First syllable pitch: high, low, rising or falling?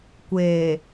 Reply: low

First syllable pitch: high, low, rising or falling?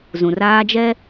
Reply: low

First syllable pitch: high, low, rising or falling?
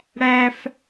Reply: high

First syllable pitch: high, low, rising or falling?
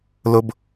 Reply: high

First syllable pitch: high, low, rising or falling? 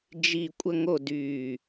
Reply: falling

